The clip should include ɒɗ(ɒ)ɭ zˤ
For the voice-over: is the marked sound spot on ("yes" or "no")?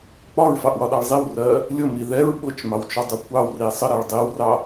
no